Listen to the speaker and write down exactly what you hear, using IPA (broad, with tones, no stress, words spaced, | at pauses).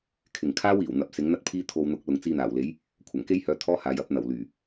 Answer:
kʰɪ˨ŋkʰaː˥wiː˨˩w n̪ɐ˨˥p̚sɪ˨˥ŋn̪ɐ˥t̚pʰiː˥ t̪ʰo˧wn̪ʊ˨˥k̚ lʊ˨ŋt͡siː˧n̪aː˨˩wle˨˥j | kʷʰɐ˨˩ŋke˥jhœː˧ t̪ʰɔː˥haː˨j ɐ˨˥p̚n̪ɐ˨˩w lyː˨˩